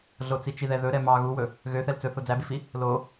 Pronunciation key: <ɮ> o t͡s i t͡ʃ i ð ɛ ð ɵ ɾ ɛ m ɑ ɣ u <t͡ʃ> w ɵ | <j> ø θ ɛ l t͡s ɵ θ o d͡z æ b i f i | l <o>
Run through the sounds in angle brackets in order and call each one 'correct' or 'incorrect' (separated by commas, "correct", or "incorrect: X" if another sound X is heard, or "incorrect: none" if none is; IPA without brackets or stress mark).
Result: correct, incorrect: none, incorrect: ɣ, correct